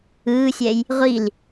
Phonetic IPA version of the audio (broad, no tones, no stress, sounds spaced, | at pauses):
ɯː sʲ ɛ j | ʁʷ i l